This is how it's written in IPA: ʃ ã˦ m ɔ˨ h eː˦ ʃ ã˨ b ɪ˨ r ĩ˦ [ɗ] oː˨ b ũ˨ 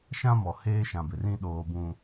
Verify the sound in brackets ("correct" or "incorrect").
correct